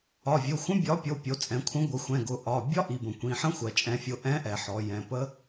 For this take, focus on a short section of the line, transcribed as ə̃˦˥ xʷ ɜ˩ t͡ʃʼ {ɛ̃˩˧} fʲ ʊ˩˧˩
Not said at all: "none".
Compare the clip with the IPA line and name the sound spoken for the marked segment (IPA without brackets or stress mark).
ɛ̃˩˧